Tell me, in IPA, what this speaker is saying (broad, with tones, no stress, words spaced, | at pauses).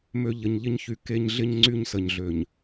mø˨ ʎə˨ɲʎɪ˦ɲçy˨ ke˦ɲ ɮɪ˦ɲ ŋ͡ǀy˦ɲsə˨ɲɮø˨ɲ